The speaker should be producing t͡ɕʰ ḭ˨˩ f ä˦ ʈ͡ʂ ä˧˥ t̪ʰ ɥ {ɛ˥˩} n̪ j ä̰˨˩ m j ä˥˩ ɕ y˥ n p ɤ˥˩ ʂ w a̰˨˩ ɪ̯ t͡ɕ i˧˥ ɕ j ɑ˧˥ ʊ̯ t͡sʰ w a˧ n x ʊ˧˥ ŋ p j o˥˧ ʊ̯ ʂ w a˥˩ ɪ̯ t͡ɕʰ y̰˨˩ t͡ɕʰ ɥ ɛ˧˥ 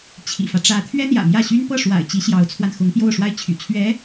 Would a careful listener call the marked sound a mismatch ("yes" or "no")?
yes